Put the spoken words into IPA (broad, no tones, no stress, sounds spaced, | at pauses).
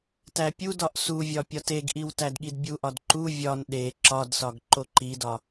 t æ pʲ u d ɒ ʔ s u vʲ ɒ pʲ ɒ t e ɡ ʔ i w t æ d ɠ i d bʲ u ʔ ɒ d ǃ u vʲ ɒ n ɗ e ǁ ɒ d s ɒ ɡ ǃ o ǃ i d ɒ